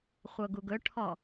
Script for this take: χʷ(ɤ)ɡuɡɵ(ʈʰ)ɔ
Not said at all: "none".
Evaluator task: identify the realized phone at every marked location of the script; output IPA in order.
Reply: ɤ, ʈʰ

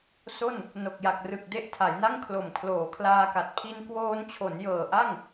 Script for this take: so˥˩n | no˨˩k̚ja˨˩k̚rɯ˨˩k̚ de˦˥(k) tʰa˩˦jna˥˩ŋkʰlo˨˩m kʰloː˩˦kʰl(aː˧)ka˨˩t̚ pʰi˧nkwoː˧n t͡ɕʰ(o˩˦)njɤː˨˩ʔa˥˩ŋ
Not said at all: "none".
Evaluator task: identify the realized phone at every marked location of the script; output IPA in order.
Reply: ʔ, aː˧, o˩˦

